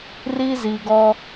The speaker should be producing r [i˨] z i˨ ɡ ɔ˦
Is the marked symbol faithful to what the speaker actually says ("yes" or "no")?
no